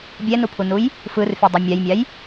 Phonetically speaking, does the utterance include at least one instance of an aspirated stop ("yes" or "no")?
yes